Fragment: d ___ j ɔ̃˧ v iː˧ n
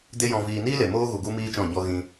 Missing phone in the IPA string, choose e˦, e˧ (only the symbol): e˦